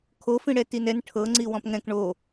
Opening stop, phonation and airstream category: aspirated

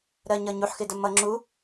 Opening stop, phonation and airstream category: plain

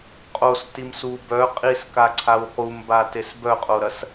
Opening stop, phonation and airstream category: ejective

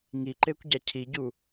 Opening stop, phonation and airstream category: click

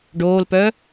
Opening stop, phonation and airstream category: plain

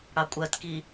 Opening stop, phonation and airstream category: ejective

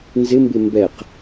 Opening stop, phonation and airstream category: plain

